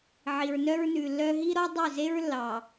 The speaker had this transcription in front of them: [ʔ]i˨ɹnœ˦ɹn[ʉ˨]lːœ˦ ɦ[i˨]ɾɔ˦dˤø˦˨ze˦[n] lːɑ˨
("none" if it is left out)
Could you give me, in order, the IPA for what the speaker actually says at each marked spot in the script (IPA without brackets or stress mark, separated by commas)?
ʕ, ʉ˨, i˦, ɹ